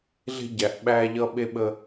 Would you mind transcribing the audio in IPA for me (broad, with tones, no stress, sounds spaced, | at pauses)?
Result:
ɮ e̤˦ ɟ æ˨ ʔ ɓ æ˦ ʎ ʌ˦ ɓ e˦ ɓ ə˦